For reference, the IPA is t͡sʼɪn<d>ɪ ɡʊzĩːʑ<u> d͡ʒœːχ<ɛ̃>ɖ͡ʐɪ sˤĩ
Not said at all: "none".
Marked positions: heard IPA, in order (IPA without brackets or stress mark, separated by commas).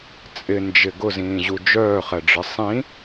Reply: d͡ʒ, u, ɛ